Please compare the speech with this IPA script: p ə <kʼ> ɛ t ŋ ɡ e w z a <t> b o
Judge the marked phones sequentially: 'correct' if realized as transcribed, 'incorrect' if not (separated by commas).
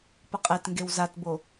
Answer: incorrect, correct